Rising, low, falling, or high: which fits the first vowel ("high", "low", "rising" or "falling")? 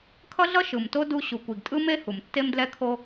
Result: high